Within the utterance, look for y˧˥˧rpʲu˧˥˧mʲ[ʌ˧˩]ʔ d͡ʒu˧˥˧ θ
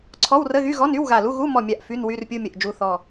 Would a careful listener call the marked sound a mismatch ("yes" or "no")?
yes